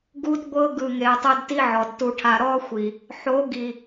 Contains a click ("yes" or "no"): no